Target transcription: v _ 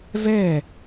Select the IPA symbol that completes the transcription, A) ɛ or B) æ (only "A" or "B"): A